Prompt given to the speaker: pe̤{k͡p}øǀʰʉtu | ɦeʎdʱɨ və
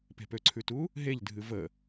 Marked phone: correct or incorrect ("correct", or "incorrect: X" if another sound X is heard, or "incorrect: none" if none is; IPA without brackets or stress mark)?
incorrect: p